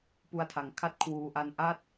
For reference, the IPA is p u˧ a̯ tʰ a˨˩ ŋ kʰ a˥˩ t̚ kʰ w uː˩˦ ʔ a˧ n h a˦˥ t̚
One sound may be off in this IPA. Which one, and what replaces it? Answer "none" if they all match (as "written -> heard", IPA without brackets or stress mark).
h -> ʔ